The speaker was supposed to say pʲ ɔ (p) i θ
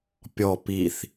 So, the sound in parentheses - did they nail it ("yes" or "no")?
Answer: yes